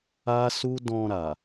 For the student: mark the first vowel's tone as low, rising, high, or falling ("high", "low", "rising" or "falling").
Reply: high